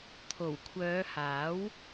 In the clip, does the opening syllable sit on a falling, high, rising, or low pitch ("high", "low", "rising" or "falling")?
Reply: low